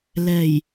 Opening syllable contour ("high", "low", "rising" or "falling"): low